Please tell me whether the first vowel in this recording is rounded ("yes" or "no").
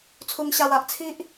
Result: yes